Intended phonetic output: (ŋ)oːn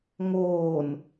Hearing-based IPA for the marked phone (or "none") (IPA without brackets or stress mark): ŋ